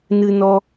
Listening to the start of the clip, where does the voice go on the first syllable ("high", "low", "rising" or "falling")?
high